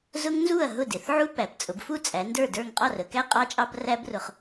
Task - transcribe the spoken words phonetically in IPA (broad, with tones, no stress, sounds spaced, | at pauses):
z ʊ˦˥ ŋ n z u˥˩ ɐ̯ ɦ ʊ˥˩ d ɪ˩˧ θ ʕ u˦˥ p æ˩˧ p t͡sʼ ʊ˩˧ b f u˥˩ t͡sʼ æ˩˧ n d ə˞˥˩ d ə˞˥˩ ŋ qʼ ɑ˥˩ r ə˩˧ k æ˦˥ qʼ ɑ˦˥ t͡ʃʼ ɑ˦˥ b r æ˦˥ b r ʊ˩˧ χ